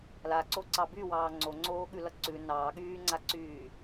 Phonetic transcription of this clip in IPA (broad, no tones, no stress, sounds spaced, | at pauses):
l a ǀ o ǀ ɑ b y w ɑː ŋ͡ǀ o ŋ͡ǀ oː ɠ ʉ l ʌ ǀ ʉ n ɑː ɠ yː ŋ͡ǀ a ǀ yː